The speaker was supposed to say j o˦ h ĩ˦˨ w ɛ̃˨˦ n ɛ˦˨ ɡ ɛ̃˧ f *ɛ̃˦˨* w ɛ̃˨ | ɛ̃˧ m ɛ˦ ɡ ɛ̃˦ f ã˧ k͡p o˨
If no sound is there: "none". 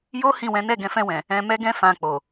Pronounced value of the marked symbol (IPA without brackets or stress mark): ɛ̃˧